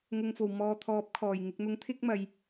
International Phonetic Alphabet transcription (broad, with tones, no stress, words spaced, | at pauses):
ŋʊ˨ŋfo˨˩w mɔː˨˧t̪ʰɔː˨˥p̚kʰɔː˨˩j ŋɪ˨k̚n̪ʊ˨˥ŋ t̪ʰɪ˥k̚mɐ˨j